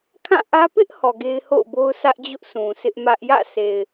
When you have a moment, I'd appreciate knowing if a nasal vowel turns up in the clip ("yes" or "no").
yes